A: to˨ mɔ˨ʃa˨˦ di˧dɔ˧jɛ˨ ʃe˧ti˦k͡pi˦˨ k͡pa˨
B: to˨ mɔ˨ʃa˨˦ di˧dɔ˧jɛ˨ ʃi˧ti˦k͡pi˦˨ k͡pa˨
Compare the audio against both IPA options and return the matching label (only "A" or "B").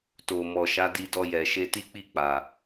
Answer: A